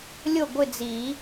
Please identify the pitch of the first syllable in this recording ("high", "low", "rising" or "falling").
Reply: falling